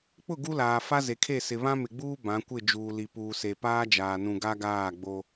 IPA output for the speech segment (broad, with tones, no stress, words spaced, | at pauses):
k͡pʊ˦˨ɡu˦laː˨ fa˦ze˨kʰe˦˨ sɪ˨βã˦mɪ˨ɡ͡buː˦ bã˨˦kʷɪ˦˨ d͡ʒuː˨li˨puː˨se˨ paː˦d͡ʒaː˨nũ˨ ɡa˦ɡaː˦˨ɡ͡bo˦